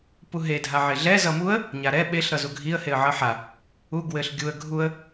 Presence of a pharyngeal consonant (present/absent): present